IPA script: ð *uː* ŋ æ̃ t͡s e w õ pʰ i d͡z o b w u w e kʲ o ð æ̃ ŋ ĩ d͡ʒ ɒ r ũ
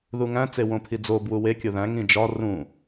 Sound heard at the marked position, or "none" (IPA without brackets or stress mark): u